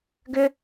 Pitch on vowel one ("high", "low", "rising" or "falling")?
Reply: high